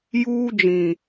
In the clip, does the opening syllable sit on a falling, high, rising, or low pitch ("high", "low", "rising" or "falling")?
high